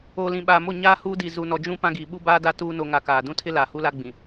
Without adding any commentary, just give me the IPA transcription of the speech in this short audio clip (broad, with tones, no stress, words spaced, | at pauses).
oː˨lĩ˨ɓaː˨mo˦˨ ɲaː˦ huː˦di˨ zu˨nɔ˨ d͡ʒũ˦ pã˦ɡiː˨ ɓu˦baː˦da˦ tuː˦ no˨ŋa˨ kaː˨ dũ˦tʰɪ˦ laː˨hu˦la˦ ɡ͡bĩ˨